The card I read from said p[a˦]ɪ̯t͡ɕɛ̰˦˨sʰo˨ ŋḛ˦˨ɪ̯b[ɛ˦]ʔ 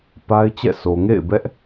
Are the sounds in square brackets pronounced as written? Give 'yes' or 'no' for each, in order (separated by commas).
yes, yes